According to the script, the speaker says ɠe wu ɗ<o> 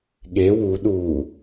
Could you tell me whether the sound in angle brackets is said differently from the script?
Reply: yes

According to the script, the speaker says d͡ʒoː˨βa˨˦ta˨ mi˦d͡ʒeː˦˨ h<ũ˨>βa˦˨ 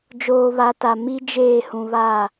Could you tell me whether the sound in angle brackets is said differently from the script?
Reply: no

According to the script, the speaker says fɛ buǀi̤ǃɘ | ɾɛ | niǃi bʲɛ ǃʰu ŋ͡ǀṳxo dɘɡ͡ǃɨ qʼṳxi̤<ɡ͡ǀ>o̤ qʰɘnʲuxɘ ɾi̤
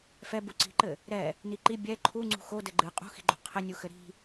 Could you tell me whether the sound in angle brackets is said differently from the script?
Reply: yes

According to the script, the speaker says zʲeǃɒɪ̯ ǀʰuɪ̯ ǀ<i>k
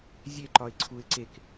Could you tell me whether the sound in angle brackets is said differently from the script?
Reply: yes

